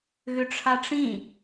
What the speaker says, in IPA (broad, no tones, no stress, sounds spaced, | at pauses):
ɣ ʏ ʈ͡ʂʰ a ʈ͡ʂ ĩ